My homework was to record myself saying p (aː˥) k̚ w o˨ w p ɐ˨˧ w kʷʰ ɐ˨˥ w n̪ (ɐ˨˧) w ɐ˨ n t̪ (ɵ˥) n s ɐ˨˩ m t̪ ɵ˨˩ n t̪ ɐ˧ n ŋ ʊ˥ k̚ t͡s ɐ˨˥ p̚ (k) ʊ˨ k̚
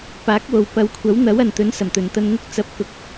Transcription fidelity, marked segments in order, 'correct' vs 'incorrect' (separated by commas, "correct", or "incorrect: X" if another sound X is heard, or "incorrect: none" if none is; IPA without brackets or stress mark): incorrect: aː˨˥, incorrect: ɐ˨˥, incorrect: ɵ˨˥, correct